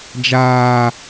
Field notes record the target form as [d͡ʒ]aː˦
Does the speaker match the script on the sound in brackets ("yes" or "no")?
yes